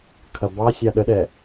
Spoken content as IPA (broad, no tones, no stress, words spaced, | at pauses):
kʰɐbɑsʲa ɗəɗɛ